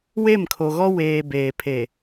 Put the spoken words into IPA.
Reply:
w e˦˨ m kʰ o˨ ɣ ɔ˦ w eː˨ b eː˨ pʰ e˨

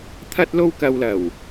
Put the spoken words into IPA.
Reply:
t̪ʰ ɐ˧ t̚ l o˧ w k ɐ˧ w l ɐ˨˩ w

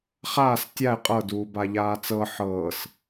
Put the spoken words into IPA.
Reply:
χ aː s tʲ a ɪ̯ qʼ ɤ d uː b a ʎ aː t͡s ɤ ħ ɤː s

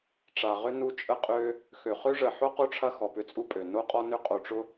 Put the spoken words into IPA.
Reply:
ʈ͡ʂ a˨ ʁ ʏ˥ n u˦ t͡ʃʼ ə˦ qʼ ø˦ | x ø˨ χ ø˥ ʐ ə˨ ħ o˥ q o˥ ʈ͡ʂʰ ɐ˦ x ɔ˨ p ʏ˦ t͡sʼ u˥ pʼ ø˩ n o˦ qʼ ɔ˦ n ʏ˦ qʼ o˨ ʈ͡ʂ ʊ˥

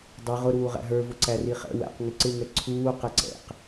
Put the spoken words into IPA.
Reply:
dˤ i ʁ ʊ ɾ uː ʁ æ̰ ɦ ə˞ v ʊ ǀ æ r i χ ɛ̰ w æ̰ q ŋ ɪ ǀ ɪ ŋ ɛ ǀʰ uː q ɛ ǀ ɛ̰ q

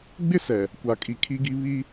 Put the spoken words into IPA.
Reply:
ɡ͡b ɪ˦˨ s ɛ˨ | kʷ a˨ kʼ i˨ kʰ i˦ ɡ i˦ β i˦

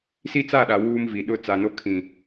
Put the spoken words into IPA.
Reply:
s i˦ t͡s a˦˨ ɗ a˨ w uː˦ m v i˨ ɗ ʊ˦ t͡s a˨ n o˦ kʰ ĩ˨

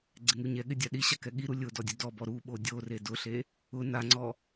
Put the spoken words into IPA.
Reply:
ɡ͡ǀ ɪ ŋ u ɲ ɛ ɠ ɪ dʲ a ɗ i ɕ a k ɛ ɠ i ɾ u lʲ ʊ d ɔ dʲ u d ɔ b ɔ ɾ u ɓ o dʲ o r e d ʊ ɬ e | ʊ n a ŋ͡ǀ ɔ

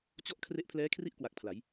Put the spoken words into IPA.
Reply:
t͡ɕ ɔ˦˥ ʔ kʰ r e˦˥ ʔ pʰ l ɛː˦˥ kʰ r i˥˩ ʔ k w a˨˩ k̚ pʰ l a˩˦ j

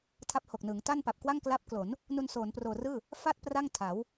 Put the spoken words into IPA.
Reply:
tʰ a˦˥ p̚ h o˨˩ k̚ n ɯː˩˦ ŋ t a˥˩ n p a˨˩ p̚ k w a˥˩ ŋ k l a˦˥ p̚ k l o˩˦ n | n u˧ n s oː˩˦ n p r oː˨˩ r ɯː˥˩ | f a˥˩ t̚ p r a˥˩ ŋ tʰ a˩˦ w

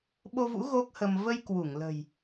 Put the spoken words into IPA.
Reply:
ɓ o˧ v ṵ˧˥ ɣ o˦˥ k̚ h ə˧ m v ə˧ j k w u˧˩ ŋ l ə̤˨˩ j

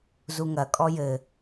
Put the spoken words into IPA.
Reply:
z u ŋ ɐ kʼ ɔ j ɘ

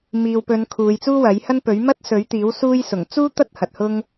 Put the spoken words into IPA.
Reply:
m iː˨ w p ɵ˨˧ n kʰ uː˨˧ j t͡s uː˥ w ɐ˨˥ j h ɐ˥ n p ɵ˨˥ ɥ m ɐ˥ t̚ s ɵ˨˥ ɥ t̪ iː˨˥ w s uː˥ j s ʊ˨˩ ŋ t͡s uː˥ t̪ ɐ˥ t̚ h ɐ˨ t̚ h ʊ˥ ŋ

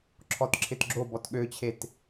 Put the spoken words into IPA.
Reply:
ǁʰ ɔ t ǁʰ ɪ t ɡ͡ǁ o b ɔ t ɠ ø t͡ɕʰ e t

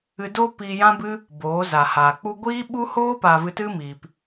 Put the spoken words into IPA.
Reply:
ɨ˧ d oː˦ p iː˧ j ã˦ b ɨ˦ | b oː˨˦ z a˨ h aː˨ k͡p u˧ ɡʷ iː˦ ɓ u˦ h oː˦ p a˨ v ɨ˧ t ɨ˦ m iː˨ p

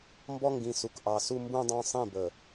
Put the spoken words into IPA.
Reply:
m b ɔ˦ ŋ ɡ ĩ˨ s u˨ k ʔ ɑ˨ s u˦ m b ũ˦ dˤ ɑ̃˦ sˤ ĩ˦˨ b ə˨

